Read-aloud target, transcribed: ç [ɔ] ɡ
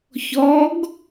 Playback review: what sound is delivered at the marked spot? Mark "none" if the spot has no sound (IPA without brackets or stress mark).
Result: ɔ